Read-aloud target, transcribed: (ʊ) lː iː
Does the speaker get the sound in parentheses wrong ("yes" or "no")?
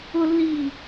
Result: no